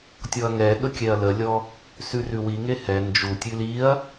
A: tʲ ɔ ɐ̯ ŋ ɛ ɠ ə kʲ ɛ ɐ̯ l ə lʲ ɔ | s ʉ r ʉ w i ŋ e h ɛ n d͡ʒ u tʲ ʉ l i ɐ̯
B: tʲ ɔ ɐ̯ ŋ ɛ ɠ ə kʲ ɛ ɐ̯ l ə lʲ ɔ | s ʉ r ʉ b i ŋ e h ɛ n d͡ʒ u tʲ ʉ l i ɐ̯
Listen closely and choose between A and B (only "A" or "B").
A